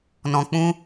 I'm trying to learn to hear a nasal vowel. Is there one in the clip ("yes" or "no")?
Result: yes